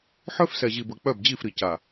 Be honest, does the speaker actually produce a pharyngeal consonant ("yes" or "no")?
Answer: yes